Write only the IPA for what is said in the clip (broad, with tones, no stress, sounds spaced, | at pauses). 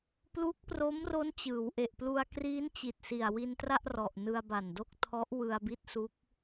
p l u˦˥ k̚ p r o˦˥ m r o˦˥ n t͡ɕ ɯː˩˦ w ʔ e˨˩ ʔ p l u˧ a̯ k r iː˦˥ n t͡ɕ i˨˩ t̚ s i˨˩ a̯ w i˧ n t r a˥˩ ʔ r ɔ˨˩ ʔ n ɯ˧ a̯ b a˨˩ n d o˥˩ k̚ tʰ ɔ˦˥ ʔ w ɯ˧ a̯ b i˦˥ t̚ s u˦˥ k̚